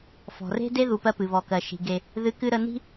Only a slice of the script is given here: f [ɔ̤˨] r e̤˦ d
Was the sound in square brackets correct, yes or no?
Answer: yes